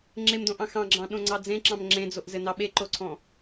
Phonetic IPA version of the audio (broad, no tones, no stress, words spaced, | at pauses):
ŋ͡ǁemdõʔɑ̃ xɑ̃ɡ͡ǁɑ̃ɗõŋ͡ǀɑ d͡zẽǁɑ̃m ŋ͡ǁẽd͡zoʔzɘnɑ ɓeǃoǀʰɔ̃